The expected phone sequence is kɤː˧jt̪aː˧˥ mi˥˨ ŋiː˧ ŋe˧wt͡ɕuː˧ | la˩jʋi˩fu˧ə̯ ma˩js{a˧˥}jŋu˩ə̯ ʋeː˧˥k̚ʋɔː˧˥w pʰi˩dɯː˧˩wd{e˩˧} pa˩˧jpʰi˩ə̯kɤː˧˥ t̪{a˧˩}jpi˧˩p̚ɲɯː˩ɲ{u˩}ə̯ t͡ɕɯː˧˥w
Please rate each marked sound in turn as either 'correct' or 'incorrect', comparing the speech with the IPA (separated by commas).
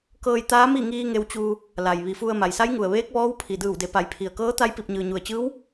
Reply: correct, correct, incorrect, correct